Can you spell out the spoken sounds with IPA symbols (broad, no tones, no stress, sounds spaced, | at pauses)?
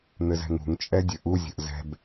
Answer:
n̪ ɘ z ɛ̤ ŋ ṳ ŋ t͡ʃʼ ɛ dʲ ɘ ʔ u zʲ ə̤ ʔ z ɛ̤ b